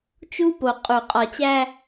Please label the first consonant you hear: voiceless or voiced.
voiceless